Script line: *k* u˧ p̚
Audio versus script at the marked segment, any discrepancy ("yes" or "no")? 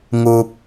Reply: yes